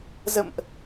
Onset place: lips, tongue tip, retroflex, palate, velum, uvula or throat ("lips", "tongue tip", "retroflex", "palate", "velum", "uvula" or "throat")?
tongue tip